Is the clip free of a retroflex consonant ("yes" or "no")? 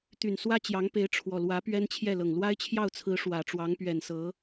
no